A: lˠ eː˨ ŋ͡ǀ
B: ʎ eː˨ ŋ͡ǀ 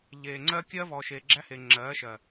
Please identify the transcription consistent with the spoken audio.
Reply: B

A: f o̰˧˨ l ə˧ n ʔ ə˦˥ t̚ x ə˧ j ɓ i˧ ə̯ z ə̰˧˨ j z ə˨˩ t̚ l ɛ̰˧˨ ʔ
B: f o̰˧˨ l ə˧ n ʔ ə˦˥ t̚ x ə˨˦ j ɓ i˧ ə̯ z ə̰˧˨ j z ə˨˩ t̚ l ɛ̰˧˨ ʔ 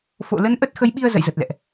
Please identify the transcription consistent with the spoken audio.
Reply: B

